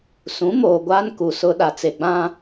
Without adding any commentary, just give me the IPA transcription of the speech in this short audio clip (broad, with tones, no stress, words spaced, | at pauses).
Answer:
sũ˨˦moː˨ ɡʷaː˦nku˨sʊ˦ ɗa˨t͡se˨ɡ͡bã˦